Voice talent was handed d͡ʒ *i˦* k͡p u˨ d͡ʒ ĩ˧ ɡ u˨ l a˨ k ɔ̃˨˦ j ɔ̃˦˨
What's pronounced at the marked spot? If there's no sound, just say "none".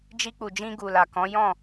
i˧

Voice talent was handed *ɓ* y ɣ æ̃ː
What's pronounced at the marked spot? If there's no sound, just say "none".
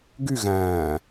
ɡ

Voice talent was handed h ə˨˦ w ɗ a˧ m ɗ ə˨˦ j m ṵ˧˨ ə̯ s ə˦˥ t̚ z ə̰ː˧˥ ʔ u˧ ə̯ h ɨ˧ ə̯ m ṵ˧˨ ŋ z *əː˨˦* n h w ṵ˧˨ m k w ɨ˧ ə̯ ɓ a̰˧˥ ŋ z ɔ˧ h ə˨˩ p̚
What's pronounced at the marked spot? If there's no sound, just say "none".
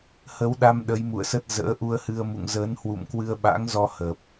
əː˨˦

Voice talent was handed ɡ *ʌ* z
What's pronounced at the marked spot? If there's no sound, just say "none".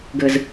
ə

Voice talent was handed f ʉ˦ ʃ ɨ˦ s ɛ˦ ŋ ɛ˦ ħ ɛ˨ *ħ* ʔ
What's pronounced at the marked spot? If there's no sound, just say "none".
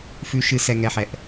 none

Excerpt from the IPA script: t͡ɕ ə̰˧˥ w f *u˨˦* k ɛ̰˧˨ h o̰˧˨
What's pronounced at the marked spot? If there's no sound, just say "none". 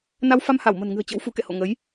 u˨˦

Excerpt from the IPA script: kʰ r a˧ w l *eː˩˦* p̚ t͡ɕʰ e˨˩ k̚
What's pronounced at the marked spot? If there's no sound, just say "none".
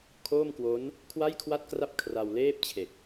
eː˥˩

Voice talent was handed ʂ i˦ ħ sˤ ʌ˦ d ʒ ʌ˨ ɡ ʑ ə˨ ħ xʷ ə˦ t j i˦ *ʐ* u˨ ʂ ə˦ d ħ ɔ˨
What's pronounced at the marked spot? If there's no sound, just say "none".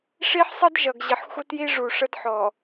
ʐ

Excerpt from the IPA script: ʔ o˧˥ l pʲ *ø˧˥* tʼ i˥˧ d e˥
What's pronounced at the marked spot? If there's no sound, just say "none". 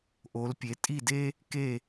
e˧˥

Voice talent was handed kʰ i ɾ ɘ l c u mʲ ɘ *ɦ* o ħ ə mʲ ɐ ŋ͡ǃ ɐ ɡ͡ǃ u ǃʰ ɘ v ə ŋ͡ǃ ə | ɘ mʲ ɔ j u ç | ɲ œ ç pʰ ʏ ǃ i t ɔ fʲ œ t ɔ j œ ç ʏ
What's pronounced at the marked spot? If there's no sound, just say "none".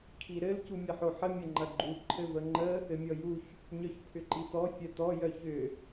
ħ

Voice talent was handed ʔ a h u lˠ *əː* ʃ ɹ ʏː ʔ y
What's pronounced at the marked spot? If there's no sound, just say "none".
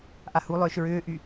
ʏː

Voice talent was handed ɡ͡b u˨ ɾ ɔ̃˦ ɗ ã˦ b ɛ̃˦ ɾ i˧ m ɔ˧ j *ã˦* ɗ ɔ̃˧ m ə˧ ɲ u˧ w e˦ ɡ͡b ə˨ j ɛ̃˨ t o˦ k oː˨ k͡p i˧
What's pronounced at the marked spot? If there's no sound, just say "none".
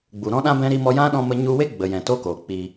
ã˦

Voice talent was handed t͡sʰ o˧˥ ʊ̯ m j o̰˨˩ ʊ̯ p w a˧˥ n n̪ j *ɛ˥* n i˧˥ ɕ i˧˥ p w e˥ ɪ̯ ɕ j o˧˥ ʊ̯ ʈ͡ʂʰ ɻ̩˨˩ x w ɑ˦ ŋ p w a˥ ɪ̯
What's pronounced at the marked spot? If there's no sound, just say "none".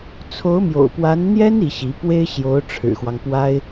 ɛ˥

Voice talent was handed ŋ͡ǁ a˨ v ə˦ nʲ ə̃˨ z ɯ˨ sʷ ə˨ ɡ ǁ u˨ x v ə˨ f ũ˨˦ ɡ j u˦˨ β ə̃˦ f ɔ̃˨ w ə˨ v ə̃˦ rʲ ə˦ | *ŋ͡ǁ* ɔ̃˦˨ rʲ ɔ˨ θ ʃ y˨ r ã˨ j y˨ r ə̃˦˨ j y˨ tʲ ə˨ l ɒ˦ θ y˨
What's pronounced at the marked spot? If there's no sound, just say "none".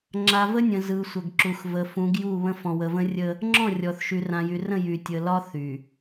ŋ͡ǁ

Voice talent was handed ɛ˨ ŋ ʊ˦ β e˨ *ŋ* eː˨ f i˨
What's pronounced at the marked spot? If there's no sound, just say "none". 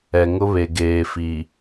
ɡ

